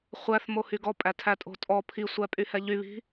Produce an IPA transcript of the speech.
χʷ æ θ m o h y ɡ ɔ pʼ æ tʰ æ tʼ o̤ tʼ ɔ pʰ i sʷ æ pʼ y h ɛ ʎ y β i̤

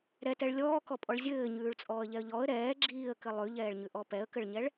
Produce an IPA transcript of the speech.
ɾ ɛ t ɛ ɭ lʲ ɔː k ɔ pʼ ɔ ɭ zʲ ɘː ɲ ʉː ɭ t͡sʼ ɔː ə̯ ʎ ɛ ə̯ ʎ ɔ ə̯ ɾ ɛː ɡ͡ǁ iː ə̯ k ɘ lˠ ʉ ʎ ɛː ɭ ɲ ʉ ʔ ɔ p ɛ ə̯ k ɘ ɭ ɲ ɛ ɭ

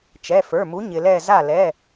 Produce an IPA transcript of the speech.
t͡ʃ ɛ˩˧˩ f ə˞˩˧˩ m u˨˥ ɲ ɪ˩ l ɛ˧˩ z a˧˩ l ɛ˩˧˩

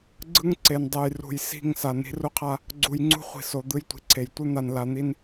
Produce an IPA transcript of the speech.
ɡ͡ǀ ɯ˦ ŋ ǀ e˨ n dˤ e˨ j r ṳ˨ j s i̤˦˨ ŋ s a˨ n i̤˦ r u˦ qʰ a˦ | ɡ͡ǀ u˨ j ŋ͡ǀ ṳ˦ χʷ i̤˨ s o˨ d̪ ɯ˦ j tʷ i̤˨ ǀʰ e˨ j tʷ ɯ˦ n̪ a˨ n l a˨ n̪ i˦ n

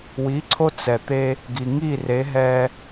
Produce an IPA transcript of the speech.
w i˩˥ ǀʰ o˧ t͡s ɛ˩ t̪ e˧ | ɡ i˩ ŋ i˥˩ r e˩˥ ɦ ɛ˧

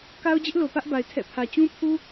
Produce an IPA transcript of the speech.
k a˦ ʊ̯ d͡ʑ ɪ˦ ʔ l o˨ p ä˦ ʔ b a˨ ɪ̯ tʰ ɛ̰˦˨ pʰ ä˨ t͡ɕ ũ˦ pʰ u˦

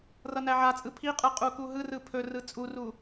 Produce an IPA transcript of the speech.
r ʌ n æ ʕ a t͡sʼ ɯ pʰ i qʼ ɯ qʼ u k u ɦ ɯ r ɯ pʰ ɵ r ɯ t͡sʼ u r u

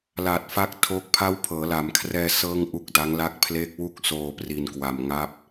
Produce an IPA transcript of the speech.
l a˨˩ t̚ f a˦˥ k̚ tʰ o˦˥ k̚ pʰ a˦˥ w pʰ ɤː˩˦ l a˩˦ m kʰ r ɛː˧ s ɤː˥˩ ŋ ʔ u˦˥ k̚ d a˦˥ ŋ l a˥˩ k̚ pʰ l e˦˥ k̚ w u˦˥ k̚ s oː˧ p r i˧ n k w a˧ m ŋ a˥˩ p̚

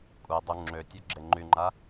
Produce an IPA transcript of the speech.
kʷʼ ɛ dˤ u ŋ͡ǁ ø tʲ ɔ ɡ͡ǁ e ŋ͡ǃ y ŋ͡ǃ a

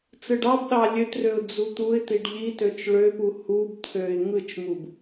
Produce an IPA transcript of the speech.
t͡s ɯ ɖ ɑ b ɗ ɑ lʲ ø t r ø ʊ̯ d͡z u t̪ u ɪ̯ t̪ i ɖ ʎ i t ø t͡ʃ ɭ ø p u h u b t̪ʰ ø ɪ̯ ŋ ɯ t͡ʃ m u b

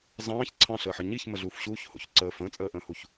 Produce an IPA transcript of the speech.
z ɑ̃ː ç ǀʰ ɑ̃ ɬ əː ħ ə ɲ i ç m ə ɮ uː f ɕ uː ç h o̰ ç ǀ əː f ə̃ː t͡sʼ əː ʔ ə̃ː h u ç

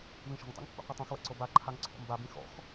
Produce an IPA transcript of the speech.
β ĩ ʃ o̤ ŋ tˤ ṵ ŋ pː ṵ qʷ i tˤ õ x w ɛ̰ ǀ o b a ǃʰ a ŋ ǀʰ o̰ m b a b ĩ x ɔ̰ x

